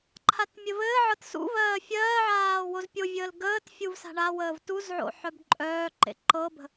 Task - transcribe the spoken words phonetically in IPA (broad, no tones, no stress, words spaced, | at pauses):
ǃʰatmʲɘvɘːʕɤt sṵ vɜːfʲɜːʕaː wozpʲovʲəːl ɡəːt fʲuvsa̤ɳawəːv tuzʕo̰ ħœbǃʼœːǃḛ ǃɤbə̤